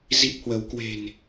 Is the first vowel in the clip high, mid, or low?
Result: high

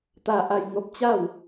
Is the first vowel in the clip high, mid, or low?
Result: low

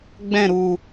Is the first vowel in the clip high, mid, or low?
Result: mid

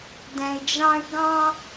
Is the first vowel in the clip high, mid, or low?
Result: mid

